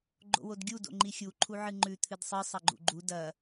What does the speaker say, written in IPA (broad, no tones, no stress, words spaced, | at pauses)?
ɡ͡ǃo̰wodɡʲu do̰ŋ͡ǃixʲu ǃʰuʕɨŋ͡ǃʉ t̪ʰɨdsˤɨ sˤɐɡ͡ǃṵɡ͡ǃu dɐ